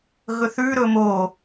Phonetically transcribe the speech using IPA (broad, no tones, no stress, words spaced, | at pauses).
ɣɵθʉ ɾɵmo